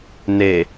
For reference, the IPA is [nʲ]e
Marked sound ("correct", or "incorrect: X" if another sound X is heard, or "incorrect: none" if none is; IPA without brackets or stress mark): incorrect: n